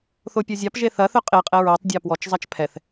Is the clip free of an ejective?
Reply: no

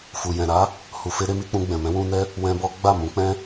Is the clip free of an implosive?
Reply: yes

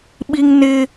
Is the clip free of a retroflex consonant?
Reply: yes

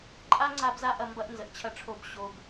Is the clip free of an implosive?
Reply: yes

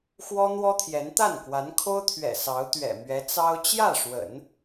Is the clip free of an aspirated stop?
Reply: no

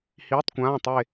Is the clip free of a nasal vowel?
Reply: no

